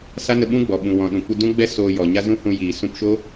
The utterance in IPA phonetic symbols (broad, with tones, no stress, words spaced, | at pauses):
sa˦nə˧ɓũ˦ɡ͡bɔ˨ ɓũ˨wɔ̃˨ ɗũ˨kʷɨ˧dũ˦ɡ͡bɛ˦ soː˧jɔ˨ɲa˦ zũ˦hũ˧ jiː˨ sũ˧pʃo˦